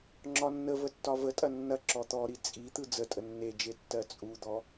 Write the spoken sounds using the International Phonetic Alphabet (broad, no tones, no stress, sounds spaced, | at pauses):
ŋ͡ǁ ɒ nː ə v ə tː ɒ v ə tʼ ɐ nː ɐ ǁ ɔ t̪ ɔ ɾ i t͡sʼ i t̪ ɯ d͡z ə tʼ ə nː e d͡ʒ e tː ɜ t͡sʼ u d̪ ɔ